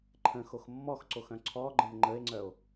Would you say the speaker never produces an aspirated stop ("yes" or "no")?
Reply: no